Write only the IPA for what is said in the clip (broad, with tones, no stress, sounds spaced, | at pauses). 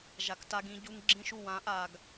ʒ a˨ k t a˦ ɡ ĩ˦ ɟ u˦ ŋ ɡ͡ǁ ĩ˦ ʃ u˦˨ w ã˨˦ ʔ a˨ ɡ